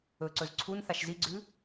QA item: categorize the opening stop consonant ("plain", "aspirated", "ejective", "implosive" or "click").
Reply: click